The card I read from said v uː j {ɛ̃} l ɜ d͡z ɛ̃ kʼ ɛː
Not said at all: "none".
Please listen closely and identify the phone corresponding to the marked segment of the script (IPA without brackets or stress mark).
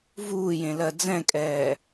ẽ